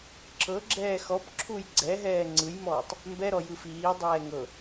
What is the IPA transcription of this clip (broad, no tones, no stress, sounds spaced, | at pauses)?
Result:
ǁʰ ɤ ɡ͡ǁ ɛː x ɔ p ǁʰ u j ɡ͡ǀ ɛ ɦ ɛː ŋ͡ǀ ɯ j m ɔː tˤ | m b ɛ ɾ ɔ j ɯ f iː dˤ ɛː ŋ ɤ